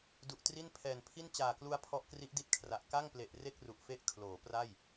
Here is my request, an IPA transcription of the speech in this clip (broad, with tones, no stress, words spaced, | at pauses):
du˨˩ʔtri˥˩n pʰɛː˨˩npʰi˥˩n t͡ɕaː˨˩klu˦˥a̯ pʰɔ˦˥ʔkri˦˥ʔdi˥˩t̚kʰra˨˩ʔ ka˥˩ŋple˨˩ʔ re˥˩k̚ru˨˩ʔfe˦˥ʔ kʰloː˩˦pra˥˩j